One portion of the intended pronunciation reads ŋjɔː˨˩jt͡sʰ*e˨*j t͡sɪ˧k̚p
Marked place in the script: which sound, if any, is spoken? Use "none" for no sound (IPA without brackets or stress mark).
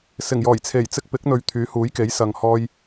e˨˩